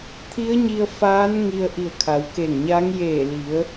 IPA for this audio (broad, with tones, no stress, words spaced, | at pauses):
t̪ʰi˧˥ə̯ɲi˧ə̯ faː˧˥n ŋi˧ə̯ʔi˧˩ə̯ kʰa˩˧wke˧˩ŋɲaː˧˥ŋ jeː˧˩ li˩˧ə̯